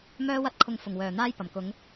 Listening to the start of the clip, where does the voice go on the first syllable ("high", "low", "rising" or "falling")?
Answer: high